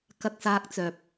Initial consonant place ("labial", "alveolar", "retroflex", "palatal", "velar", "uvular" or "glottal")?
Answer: velar